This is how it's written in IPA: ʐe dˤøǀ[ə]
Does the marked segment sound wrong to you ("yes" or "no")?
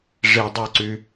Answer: yes